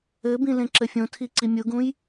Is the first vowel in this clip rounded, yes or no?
no